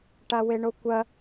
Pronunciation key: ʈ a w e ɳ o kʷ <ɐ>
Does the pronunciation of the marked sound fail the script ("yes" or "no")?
no